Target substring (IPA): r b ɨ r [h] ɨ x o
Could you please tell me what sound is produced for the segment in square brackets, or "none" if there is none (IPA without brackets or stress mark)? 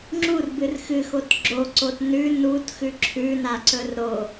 x